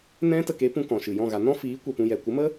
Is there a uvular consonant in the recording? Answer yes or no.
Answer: no